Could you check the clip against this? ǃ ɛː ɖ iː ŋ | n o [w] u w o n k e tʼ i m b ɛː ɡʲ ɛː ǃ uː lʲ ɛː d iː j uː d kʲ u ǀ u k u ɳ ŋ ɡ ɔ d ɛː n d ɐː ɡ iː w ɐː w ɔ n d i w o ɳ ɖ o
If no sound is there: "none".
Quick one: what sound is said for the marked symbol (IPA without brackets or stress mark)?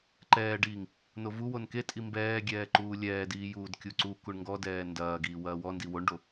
v